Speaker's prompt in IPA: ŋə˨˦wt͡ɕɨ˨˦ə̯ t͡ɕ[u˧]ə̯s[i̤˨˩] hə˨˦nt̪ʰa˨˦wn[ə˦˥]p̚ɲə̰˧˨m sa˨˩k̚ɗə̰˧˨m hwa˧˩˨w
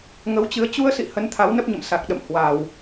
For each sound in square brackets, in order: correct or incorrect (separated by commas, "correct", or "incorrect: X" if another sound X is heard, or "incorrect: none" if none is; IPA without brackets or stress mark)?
correct, incorrect: ḭ˧˨, correct